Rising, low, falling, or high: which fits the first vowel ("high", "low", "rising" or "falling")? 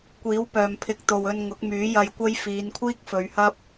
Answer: rising